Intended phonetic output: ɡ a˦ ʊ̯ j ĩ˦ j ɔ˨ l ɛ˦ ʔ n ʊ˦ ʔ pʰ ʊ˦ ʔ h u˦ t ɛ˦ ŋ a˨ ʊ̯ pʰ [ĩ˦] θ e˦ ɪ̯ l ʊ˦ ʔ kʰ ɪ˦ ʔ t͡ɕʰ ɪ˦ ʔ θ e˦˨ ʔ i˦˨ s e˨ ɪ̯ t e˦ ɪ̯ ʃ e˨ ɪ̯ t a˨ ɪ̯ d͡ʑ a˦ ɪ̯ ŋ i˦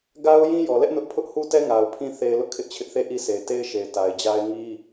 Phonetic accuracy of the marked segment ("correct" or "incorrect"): correct